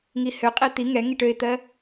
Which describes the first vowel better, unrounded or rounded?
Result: unrounded